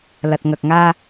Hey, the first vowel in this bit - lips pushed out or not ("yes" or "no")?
no